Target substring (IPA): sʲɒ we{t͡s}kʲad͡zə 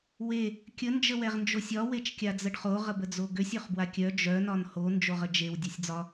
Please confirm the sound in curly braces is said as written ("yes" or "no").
no